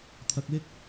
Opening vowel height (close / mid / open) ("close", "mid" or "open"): open